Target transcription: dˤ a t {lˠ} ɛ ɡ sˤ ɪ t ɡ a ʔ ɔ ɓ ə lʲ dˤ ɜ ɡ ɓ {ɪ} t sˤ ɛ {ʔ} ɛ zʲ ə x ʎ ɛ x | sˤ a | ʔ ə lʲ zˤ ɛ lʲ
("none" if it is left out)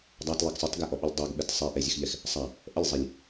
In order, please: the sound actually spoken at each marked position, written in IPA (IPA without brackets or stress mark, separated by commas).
lˠ, ɛ, ʔ